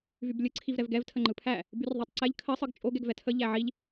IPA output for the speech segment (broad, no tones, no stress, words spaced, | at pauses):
vyblʲɯ ǀʰivɾɛvɡɛv tʰəŋ͡ǃɯpʰæ | byrðˤætˤǀɛʎ kʰə sˤɯɡt͡ʃʼoɡ ɛɡvɛtʰə ʎæʕiʎ